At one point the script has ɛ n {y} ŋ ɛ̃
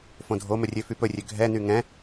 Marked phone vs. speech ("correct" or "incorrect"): correct